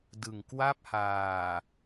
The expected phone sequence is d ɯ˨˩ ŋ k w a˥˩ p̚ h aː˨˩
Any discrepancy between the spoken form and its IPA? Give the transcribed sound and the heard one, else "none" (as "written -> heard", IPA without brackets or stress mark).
none